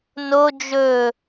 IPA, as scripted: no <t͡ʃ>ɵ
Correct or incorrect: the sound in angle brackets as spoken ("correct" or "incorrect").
incorrect